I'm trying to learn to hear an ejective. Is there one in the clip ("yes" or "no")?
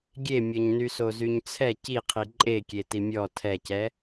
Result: yes